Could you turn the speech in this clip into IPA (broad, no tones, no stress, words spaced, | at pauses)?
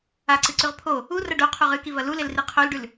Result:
aǀɨǀʉʁ pʰo | urɐ ɖoqʰuʁ ɨkivɐ lulelri qʰolɖʉl